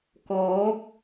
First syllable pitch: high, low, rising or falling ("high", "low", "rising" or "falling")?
rising